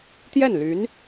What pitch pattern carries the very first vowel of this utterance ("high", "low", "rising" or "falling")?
falling